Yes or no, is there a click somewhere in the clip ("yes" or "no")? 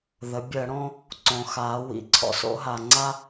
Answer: yes